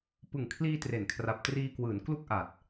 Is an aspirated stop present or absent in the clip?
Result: present